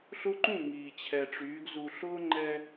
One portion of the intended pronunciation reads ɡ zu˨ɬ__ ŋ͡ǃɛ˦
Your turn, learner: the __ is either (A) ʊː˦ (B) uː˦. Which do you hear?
A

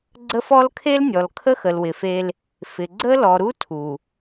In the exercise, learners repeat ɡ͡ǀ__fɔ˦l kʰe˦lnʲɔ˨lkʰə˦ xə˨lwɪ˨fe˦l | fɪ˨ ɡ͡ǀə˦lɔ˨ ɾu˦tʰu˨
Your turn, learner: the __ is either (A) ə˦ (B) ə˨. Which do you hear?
A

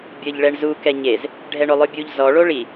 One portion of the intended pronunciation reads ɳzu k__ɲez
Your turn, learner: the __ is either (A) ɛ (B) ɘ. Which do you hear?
A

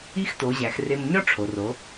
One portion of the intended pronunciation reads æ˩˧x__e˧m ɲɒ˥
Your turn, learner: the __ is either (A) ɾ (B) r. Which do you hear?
B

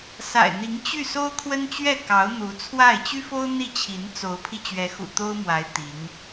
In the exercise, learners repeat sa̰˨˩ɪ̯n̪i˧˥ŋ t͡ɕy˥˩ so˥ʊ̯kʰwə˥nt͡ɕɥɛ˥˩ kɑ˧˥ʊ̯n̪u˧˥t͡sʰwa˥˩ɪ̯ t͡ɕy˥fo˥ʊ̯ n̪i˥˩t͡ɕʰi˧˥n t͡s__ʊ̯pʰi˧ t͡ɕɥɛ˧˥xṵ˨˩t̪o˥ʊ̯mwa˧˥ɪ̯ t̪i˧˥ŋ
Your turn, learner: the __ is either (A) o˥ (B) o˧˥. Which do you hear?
B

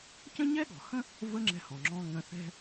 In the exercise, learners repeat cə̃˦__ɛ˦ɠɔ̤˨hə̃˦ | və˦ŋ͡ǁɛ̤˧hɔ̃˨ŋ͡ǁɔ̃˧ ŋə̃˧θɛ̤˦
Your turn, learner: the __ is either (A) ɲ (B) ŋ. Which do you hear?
A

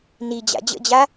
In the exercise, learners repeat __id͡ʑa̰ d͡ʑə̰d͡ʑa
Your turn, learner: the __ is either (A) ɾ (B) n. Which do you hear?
B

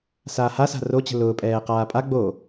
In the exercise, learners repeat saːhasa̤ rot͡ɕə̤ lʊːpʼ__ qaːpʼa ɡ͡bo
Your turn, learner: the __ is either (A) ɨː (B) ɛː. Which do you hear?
B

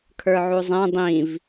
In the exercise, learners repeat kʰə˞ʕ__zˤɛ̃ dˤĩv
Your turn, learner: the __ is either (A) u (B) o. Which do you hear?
A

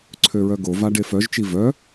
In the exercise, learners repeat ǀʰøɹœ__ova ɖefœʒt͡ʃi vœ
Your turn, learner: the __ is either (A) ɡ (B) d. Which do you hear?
A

